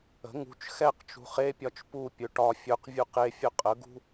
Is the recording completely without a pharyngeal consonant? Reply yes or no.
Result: yes